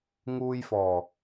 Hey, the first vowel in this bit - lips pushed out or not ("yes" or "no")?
yes